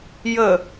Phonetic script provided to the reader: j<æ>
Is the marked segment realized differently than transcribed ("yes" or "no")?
yes